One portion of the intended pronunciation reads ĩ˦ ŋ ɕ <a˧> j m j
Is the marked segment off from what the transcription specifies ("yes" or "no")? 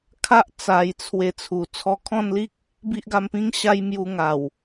yes